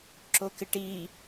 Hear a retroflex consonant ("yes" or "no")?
yes